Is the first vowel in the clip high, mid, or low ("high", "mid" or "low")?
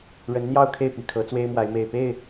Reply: mid